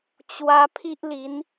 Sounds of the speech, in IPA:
t͡ɕ w a˧ pʰ i˦ ʔ l i˨˦ n

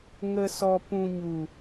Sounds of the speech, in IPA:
ŋ ə˨ s ɔ˨ p ũ˨ ɲ u˨

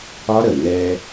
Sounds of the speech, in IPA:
ɒ˦ ɾ ə˨ n ɛ˦

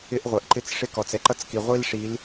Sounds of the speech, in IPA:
ɪ˦ ʔ ʁʷ ɛ˨ ʔ ǃ ɪ˦ t͡s ʂ ɪ˦ k ɔ˨ t͡s ɛ˦ ǃ ʌ˦ t͡s k i˨ ʁʷ i˦ l ʂ i˨˦ l

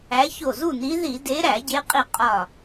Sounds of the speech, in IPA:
æ˨˦ ç o˧˩ z u˥˨ n i˨˦ ð i˧˩˧ d e˨˦ ɾ æ˧˩˧ ɟ e˨˦ qʼ i˧˩ qʼ ɒ˧˩

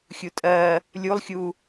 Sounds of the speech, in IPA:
xʲ u tʼ ɜ | lʲ u lˠ xʲ u

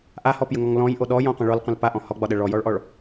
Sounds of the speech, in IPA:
ʔ a h ɔ p j ə ŋ ɔ ŋ l ɔ̃ j ʔ o ɗ ɔ j ɔ̃ qʷ ə̃ ɭ ɔ l qʷ ə̃ l p a ʔ ɔ̃ h ɔ ɡ͡b ɒ ɗ ə ɭ ɔ j ɔ ɭ ʔ ɔ ɭ

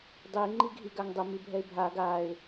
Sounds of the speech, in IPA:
dˤ i ŋ͡ǃ i ɡʱ i ɡ a ŋ dˤ ʊ m i bʱ ɛ ɪ̯ bʱ a ɡ a ɪ̯

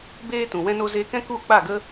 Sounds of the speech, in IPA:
b eː˦ t ũ˨ w ɛ̃˧ n o˧ z eː˧ k ɛ̃˦ k u˦˨ k͡p a˦˨ ɡ ə˦

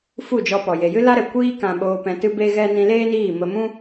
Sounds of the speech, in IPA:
f u˦˨ d͡ʒ ɔ˧ p ɔ˨ j e˨ j ɨ˦ l a˦ ɾ ɛ˨ kʷ iː˦ k ã˧ ɓ oː˧ p ɛ̃˧ t ɨ˦ b e˦ ɣ ɛ˦ n ĩ˧ l eː˦ n iː˦˨ m ə˧ m ũ˦

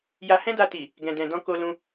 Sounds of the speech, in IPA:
j a˧ h ɛ̃˦ d a˧ t i˨ | ɡ ɛ̃˨ d ɛ̃˨ d ɔ̃˧ k o˧ l ũ˧

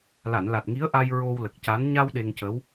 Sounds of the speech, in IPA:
l a˨˩˨ n l a˨˩ t̚ ŋ i˧˥ ə̯ ʔ a˧ j ɹ o˧ w l ə˨˩ k̚ c a˧˥ n ɲ a˧ w ɗ e˧ ŋ c ə˧˥ w

